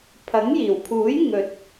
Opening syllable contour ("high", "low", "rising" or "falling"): rising